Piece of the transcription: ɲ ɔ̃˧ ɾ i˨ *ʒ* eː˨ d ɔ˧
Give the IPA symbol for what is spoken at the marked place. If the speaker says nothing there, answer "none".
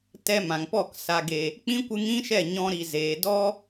z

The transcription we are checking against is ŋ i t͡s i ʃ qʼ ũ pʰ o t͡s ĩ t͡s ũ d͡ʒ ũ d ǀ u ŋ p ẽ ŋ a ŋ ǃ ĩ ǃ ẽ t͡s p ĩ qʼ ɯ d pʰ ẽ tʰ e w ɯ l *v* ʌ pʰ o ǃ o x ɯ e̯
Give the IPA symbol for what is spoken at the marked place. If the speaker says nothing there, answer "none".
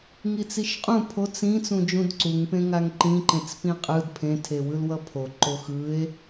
w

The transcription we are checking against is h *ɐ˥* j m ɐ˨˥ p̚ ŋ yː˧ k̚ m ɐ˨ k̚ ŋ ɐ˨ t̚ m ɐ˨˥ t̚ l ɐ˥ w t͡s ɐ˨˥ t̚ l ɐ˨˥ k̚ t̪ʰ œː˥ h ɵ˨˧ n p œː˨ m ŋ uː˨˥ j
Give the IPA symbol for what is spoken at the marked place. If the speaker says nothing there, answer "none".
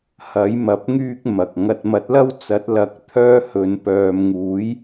ɐ˨˥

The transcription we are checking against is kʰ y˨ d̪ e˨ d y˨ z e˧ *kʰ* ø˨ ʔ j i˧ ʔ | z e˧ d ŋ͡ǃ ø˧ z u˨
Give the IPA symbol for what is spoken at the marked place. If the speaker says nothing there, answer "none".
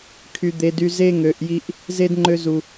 ŋ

